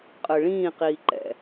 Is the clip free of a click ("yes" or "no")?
no